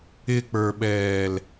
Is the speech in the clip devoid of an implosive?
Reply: no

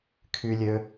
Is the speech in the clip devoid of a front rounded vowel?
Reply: no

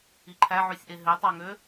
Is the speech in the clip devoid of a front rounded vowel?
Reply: no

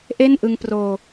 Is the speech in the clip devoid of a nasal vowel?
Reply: yes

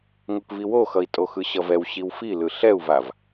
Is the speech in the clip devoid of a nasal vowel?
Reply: yes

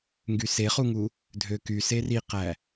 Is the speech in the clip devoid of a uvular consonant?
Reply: no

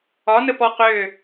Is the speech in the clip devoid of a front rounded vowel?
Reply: no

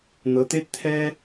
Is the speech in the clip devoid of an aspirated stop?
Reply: no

